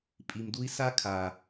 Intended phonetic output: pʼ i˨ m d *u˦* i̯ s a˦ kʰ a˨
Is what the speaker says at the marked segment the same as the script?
yes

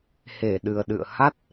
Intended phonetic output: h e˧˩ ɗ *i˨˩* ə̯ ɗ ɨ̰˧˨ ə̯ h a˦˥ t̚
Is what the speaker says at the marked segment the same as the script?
no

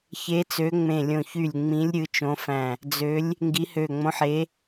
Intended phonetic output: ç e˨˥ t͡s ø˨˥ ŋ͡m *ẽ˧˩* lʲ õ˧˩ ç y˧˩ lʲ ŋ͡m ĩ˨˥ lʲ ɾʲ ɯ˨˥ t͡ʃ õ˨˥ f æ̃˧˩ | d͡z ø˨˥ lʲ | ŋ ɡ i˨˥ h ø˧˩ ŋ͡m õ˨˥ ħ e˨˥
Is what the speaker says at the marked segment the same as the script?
yes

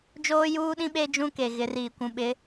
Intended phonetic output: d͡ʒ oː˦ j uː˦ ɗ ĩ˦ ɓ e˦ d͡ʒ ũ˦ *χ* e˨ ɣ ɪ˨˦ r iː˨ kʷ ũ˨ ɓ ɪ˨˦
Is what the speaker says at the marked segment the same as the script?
no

